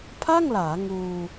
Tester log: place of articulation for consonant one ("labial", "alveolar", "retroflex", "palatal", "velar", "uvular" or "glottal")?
labial